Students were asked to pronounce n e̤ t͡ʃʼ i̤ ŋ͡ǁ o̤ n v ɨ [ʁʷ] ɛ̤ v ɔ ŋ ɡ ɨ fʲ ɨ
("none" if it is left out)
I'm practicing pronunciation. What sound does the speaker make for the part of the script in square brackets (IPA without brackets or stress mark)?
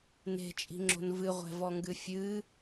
ʁʷ